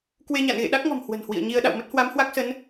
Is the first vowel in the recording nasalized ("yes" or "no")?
no